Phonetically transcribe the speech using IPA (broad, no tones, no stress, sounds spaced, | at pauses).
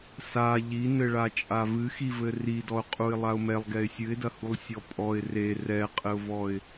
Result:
s a ʎ i n ɘ ɭ a t͡ʃʼ a v ɨ x i v ɘ r i d ɔ ʊ̯ qʼ u ɪ̯ lˠ a ʊ̯ m ɛ lˠ ɡ ɛ ɪ̯ sʲ ɨ ɪ̯ d ɐ h u lˠ sʲ ɔ pʼ ɔ ɪ̯ r e r ɛ qʼ ɘ ʊ̯ v ɔ ɪ̯